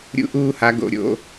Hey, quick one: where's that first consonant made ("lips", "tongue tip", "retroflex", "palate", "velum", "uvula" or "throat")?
tongue tip